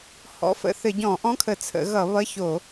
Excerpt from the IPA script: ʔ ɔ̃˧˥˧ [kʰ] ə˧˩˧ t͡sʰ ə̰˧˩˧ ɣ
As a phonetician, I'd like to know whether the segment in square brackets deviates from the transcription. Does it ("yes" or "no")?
no